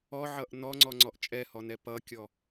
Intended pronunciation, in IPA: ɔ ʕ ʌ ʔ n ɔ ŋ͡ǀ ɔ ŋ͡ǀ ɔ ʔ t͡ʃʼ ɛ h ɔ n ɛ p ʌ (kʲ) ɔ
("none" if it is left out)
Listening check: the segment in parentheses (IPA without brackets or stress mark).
kʲ